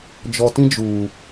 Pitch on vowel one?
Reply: low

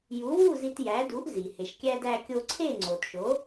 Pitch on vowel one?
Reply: rising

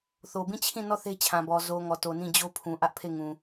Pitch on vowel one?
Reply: low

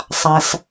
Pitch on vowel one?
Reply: low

